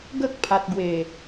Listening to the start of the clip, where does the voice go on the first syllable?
high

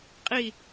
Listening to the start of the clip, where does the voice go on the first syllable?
falling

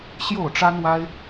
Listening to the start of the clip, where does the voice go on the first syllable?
falling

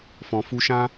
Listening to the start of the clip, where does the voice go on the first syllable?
low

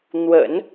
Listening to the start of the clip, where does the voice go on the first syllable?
low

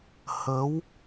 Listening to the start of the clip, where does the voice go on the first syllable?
rising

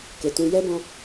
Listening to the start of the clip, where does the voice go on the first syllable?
low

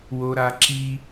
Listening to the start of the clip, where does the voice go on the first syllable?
high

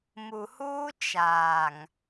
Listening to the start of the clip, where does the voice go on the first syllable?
low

